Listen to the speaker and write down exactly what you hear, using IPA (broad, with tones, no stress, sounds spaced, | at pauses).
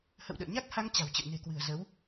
h ə̰˧˨ w ɗ ə̰ː˧˨ ɲ a˦˥ k̚ h a˧ ŋ t͡ɕ a̤˨˩ w t͡ɕ ə̰˧˨ w n e̤˨˩ k w ɨ̤˨˩ ə̯ z ə˨˦ w